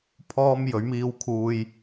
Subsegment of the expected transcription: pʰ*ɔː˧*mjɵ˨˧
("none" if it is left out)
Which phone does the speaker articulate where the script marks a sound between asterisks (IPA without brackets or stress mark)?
ɔː˧